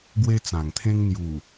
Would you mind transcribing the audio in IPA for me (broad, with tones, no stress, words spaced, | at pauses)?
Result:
ɡwe˧ t͡sã˨˩ŋt̪ʰẽ˦ŋ n̪ju˨˩